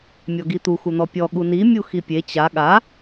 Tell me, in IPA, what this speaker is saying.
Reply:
mʲ ɔ ɡ i t̪ u x u n̪ ɔ pʲ ɔ ɠ u n i mʲ u x i pʲ e t͡ɕ a ɠ a

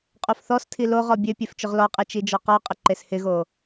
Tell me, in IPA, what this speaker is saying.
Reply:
qʼ o f θ ɔ s tʰ i l o ʁ ɔ bʲ ø pʲ e f t͡ʃ ʊ ʁ l ɔ qʼ e t͡ʃ i d͡ʒ ɔ q ɔ qʼ ə ǃ e s h ɪ ɣ o

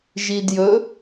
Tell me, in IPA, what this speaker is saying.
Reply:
ʒ i d j ɵ

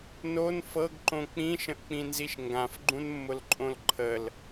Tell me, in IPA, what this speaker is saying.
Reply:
n o n f ɤ ɡ ǃ õ k͡p ĩ ʃ ə̃ ʔ k͡p ĩ n z i ʃ ŋ ɡ ã f ɡ͡ǃ ũ n mː ʊ l ǃʼ õ l ǃʰ ə l

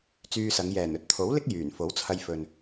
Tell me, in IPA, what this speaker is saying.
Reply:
t͡s yː˧ s ɐ˨˧ ŋ j ɛː˨˩ n ɵ˧ t̚ t̪ʰ o˨˥ w l ɪ˥ k̚ j yː˨˩ n f o˨˥ w t͡sʰ ɐ˧ j f ɵ˨ n

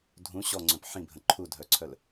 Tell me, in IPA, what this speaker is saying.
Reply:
dʱ ũ ɕ ɔ ŋ͡ǀ œ̃ p ħ ĩ bʱ ə̃ ǃʰ u dʱ œ ǀʰ œ l

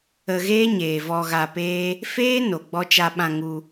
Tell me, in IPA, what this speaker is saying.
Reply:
ə˧ ɣ eː˦ ɲ eː˨ v ɔ˧ ɣ a˧ p eː˦ | f eː˦ n o˨ ɡ͡b ɔ˧ t͡ʃ a˧ ɓ ã˧ ŋ u˧

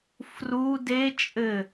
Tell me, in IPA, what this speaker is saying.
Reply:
f r u d e t͡ʃʼ ɘ

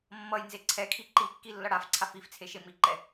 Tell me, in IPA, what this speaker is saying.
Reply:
mː ʌ j n z e ǀʰ ɛ kʰ i ǃ i kː i lː ʌ ɽ a f ǀʰ a f i f t͡sʰ e ʃ e m i ǃ ɛ

